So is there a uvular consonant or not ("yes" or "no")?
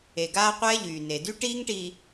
yes